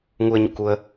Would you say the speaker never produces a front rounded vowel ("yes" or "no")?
yes